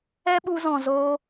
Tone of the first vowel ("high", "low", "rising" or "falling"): high